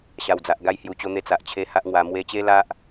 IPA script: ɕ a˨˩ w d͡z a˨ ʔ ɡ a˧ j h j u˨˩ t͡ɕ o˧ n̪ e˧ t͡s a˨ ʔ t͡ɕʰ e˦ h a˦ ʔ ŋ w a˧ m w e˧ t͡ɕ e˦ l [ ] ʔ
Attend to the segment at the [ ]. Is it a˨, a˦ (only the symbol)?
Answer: a˦